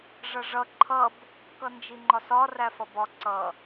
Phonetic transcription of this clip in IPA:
ʐ ʌ ʐ ʌ ǃʰ ʌ b | k ʌ n d͡ʒ i ŋ͡ǃ ɒ s ɒ r æ f ʌ b ɒ ǀ ʌ

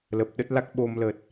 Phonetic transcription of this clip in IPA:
l ə˨˩ p̚ ɗ ə˦˥ t̚ l a˦˥ k̚ ɓ o˧ m l ə˨˩ t̚

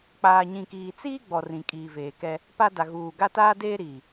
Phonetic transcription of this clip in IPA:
k͡p aː˨ ɲ ĩ˨ k iː˨ t͡s iː˦ ɡ͡b ɔ˨ r ĩ˨ kʼ iː˨ v eː˨ k ɛ˦ | p a˦ d a˨ ɣ uː˨ ɡ a˦ t aː˦ d eː˦ ɾ iː˨

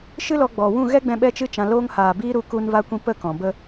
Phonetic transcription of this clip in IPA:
ʃ ɨ˦ l ɔ˧ ɡ͡b ɔ˨ w ũ˦˨ ɣ ɛ˦ ɡ͡b ɛ̃˧ ɓ ɛ˦ t͡ʃ ɨ˦ t͡ʃ ã˧ l oː˧ ŋ h aː˨ b iː˧ ɾ u˧ k u˧ n v a˧ kʷ ĩ˧ p ə˦˨ k ɔ̃˨ b ə˦

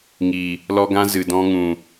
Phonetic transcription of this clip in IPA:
ŋ i˨ | l ɔ˧ ɡ ã˧ z ɨ˨ d ɔ̃˧ ŋ ũ˨

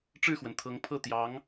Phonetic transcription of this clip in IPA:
ʈ͡ʂ ɻ̩˥˩ x w ə˩ n t̪ʰ ɤ˧˥ ŋ pʰ ɤ˥˩ t̪ j ɑ˧˥ ŋ

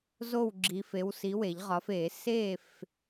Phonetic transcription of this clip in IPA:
z o˥˨ w ɡ͡ǁ i˨˦ f e˨˦ w s i˨˦ w e˨˩˦ ʎ ʁ ɒ˨˦ f e˨˩˦ s e˥˨ f

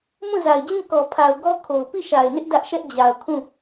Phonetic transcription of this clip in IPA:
m ũ˦˨ z a˨ ɪ̯ d͡ʑ ĩ˦˨ k ɔ˨ pʰ a˨ ʊ̯ ɡ ɔ˦ kʰ o˨ ʊ̯ p i˦˨ ʃ a˨ ɪ̯ n ɪ˦ ʔ d ä˦ ʔ ʃ ɛ˦ ʔ d͡ʑ a˨ ʊ̯ kʰ ũ˦˨

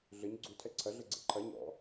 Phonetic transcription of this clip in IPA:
ɮ ɘ ɲ ɡ͡ǀ u tʰ ɛ ǀʰ ɐ ɮ ɘ ɡ͡ǀ ḛ ǃʰ ɐ ɲ ɔ̰

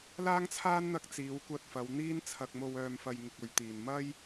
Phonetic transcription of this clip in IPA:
l aː˥ ŋ t͡sʰ aː˥ n n̪ ɐ˧ k̚ t͡s iː˨˧ w kʷ ɐ˧ t̚ f ɐ˨˧ w n̪ iː˥ n t͡sʰ ɐ˧ k̚ m o˧ w œː˧ m f ɐ˧ j ŋ ɪ˧ k̚ ɵ˨˧ ɥ t̪ iː˨ n m ɐ˥ j

